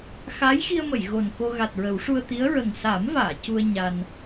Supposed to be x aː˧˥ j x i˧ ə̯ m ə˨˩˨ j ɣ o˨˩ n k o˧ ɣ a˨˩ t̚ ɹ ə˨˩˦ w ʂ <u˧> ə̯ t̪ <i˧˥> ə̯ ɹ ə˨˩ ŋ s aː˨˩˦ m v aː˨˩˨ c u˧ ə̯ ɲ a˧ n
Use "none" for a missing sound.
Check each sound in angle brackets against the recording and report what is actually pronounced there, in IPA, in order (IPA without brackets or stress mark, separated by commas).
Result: u˧, i˧˥